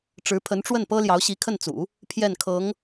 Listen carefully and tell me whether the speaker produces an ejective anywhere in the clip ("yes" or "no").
no